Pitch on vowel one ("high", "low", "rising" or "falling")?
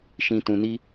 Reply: high